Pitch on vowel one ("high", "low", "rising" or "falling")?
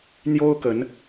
high